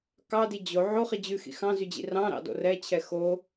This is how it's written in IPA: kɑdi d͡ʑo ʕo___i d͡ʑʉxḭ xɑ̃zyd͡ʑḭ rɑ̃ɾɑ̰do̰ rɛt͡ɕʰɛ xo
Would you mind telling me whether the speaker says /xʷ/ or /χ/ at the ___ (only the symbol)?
χ